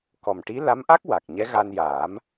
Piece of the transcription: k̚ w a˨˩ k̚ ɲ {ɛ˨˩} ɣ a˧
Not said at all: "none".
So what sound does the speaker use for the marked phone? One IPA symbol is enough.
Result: ɛ˧˥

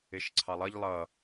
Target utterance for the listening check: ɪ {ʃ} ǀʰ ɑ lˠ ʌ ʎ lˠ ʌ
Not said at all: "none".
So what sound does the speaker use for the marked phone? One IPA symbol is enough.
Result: ʃ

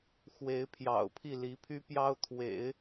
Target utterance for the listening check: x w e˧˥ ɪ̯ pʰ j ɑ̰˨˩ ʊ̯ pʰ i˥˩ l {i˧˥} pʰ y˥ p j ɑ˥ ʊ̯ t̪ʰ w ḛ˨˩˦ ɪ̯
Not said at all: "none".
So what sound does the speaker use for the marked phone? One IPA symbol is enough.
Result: i˧˥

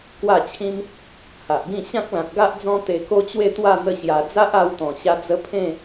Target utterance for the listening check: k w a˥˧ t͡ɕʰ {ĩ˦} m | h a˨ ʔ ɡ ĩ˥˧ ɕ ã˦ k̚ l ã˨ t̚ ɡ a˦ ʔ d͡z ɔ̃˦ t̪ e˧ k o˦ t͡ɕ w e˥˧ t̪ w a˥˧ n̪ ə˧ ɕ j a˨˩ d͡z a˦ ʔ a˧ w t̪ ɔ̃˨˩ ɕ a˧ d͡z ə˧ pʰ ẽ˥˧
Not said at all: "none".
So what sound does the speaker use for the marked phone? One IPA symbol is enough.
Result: ĩ˦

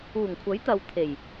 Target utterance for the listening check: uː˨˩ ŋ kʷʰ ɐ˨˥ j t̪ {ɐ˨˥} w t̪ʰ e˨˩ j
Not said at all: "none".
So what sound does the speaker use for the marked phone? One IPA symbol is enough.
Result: ɐ˨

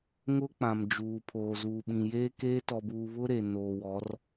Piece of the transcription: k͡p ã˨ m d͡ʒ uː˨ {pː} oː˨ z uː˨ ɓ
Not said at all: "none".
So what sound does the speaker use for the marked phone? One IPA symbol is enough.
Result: pʰ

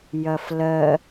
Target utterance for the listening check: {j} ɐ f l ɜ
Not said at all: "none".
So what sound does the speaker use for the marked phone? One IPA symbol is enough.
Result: j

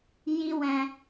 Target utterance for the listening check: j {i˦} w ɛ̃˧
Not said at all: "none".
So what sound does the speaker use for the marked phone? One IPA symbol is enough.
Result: i˦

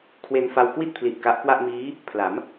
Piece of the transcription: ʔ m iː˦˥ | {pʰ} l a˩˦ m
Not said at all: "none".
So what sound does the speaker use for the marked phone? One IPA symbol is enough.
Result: pʰ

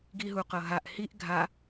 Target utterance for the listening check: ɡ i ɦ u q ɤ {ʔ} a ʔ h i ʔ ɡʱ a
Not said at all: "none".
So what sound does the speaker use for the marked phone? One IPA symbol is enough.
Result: ɦ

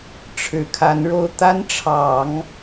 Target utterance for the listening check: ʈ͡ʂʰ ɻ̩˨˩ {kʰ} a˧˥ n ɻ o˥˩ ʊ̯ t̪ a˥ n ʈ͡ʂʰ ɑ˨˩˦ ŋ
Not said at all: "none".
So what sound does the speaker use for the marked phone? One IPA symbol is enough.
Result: kʰ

